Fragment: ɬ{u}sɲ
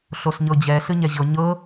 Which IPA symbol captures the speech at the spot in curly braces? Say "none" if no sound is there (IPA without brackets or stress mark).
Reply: o